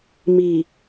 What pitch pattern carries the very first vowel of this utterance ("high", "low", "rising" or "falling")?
low